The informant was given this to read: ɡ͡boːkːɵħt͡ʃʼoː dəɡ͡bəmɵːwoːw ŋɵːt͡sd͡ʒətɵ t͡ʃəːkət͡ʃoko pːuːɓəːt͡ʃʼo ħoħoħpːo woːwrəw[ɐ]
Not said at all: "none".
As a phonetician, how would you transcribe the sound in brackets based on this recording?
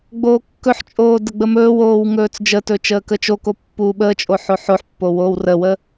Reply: ə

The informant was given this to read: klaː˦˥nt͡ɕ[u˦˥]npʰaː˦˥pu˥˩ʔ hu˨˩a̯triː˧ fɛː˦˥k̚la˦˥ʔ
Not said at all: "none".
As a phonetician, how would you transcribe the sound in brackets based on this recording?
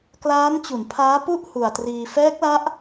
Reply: u˩˦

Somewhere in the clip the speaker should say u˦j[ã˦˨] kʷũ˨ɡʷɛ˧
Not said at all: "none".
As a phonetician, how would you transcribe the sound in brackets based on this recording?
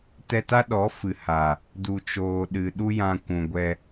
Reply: ã˧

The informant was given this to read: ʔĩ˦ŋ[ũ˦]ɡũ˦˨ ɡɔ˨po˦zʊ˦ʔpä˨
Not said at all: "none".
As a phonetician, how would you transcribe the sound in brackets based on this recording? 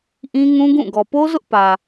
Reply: ũ˦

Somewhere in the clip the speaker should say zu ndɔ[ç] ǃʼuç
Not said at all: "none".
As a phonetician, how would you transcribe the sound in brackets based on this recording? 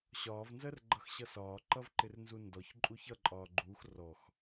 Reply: ç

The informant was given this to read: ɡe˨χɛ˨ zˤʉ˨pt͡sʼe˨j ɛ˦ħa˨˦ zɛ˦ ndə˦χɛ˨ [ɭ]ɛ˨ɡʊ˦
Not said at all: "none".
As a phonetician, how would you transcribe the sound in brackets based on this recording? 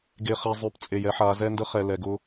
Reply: l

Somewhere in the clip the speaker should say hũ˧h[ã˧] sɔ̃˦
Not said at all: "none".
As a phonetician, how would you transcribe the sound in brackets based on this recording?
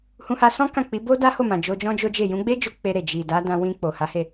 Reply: a˧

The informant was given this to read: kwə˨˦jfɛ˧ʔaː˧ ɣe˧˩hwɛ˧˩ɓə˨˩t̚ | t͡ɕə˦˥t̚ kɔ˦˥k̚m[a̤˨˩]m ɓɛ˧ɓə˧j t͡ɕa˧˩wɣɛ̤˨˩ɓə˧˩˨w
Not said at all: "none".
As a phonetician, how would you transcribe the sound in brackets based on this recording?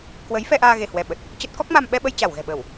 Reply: a˧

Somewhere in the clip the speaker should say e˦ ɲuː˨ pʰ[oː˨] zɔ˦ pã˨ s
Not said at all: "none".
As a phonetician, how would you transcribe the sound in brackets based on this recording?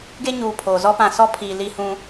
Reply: oː˨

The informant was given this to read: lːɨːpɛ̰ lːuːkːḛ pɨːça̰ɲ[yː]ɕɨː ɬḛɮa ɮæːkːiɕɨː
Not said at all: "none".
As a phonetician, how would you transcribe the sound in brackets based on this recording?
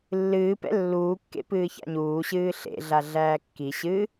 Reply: uː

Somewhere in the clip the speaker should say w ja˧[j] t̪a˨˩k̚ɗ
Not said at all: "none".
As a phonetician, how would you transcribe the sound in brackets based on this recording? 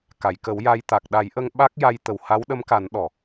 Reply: j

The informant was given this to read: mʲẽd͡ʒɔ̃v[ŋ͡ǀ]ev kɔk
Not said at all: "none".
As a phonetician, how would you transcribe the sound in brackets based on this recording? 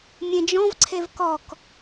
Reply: ǀʰ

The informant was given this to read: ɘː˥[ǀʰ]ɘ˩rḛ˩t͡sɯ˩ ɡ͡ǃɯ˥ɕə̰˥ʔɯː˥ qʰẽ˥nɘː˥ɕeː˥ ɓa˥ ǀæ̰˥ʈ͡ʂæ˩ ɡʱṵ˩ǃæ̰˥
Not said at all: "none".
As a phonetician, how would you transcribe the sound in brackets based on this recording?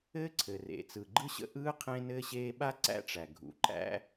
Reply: ǀʰ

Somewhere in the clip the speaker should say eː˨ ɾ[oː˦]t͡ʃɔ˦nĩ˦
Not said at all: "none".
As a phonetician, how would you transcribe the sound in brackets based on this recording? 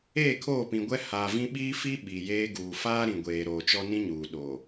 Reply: oː˨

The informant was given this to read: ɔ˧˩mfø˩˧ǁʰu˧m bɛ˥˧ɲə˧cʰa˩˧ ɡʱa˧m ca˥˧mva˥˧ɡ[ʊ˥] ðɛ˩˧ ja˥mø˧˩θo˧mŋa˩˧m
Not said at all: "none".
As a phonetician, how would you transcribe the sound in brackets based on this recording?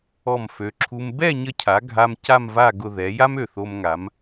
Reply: ʊ˧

